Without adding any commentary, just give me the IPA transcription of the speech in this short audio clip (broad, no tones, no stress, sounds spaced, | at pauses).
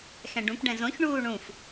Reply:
x ɛ̃ ɖ ũ p ɖ ɛ̃ z õ ç ɳ uː ɳ ũ f